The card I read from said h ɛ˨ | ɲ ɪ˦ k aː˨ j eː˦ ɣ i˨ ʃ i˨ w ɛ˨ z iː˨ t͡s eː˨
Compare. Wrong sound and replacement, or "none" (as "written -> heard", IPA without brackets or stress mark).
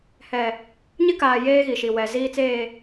none